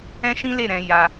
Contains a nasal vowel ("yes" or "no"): yes